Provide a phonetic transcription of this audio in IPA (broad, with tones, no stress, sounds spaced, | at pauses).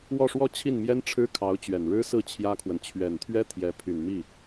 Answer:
w ɔ˥˧ ʂ w ɔ˥˧ t͡ɕʰ i˥˩ n m j ɛ˥ n ʈ͡ʂʰ ɻ̩˥ kʰ ɑ˧˥ ʊ̯ t͡ɕ ɥ ɛ˨˩ n ɻ ɻ̩˥ s ɹ̩˥˩ t͡ɕʰ j ä˥ kʰ w ə˨ n t͡ɕʰ ɥ ɛ˨˩ n t̪ʰ ɥ ɛ˥ t̪ʰ j ɛ˧˥ pʰ y˨˩ n m i˥˩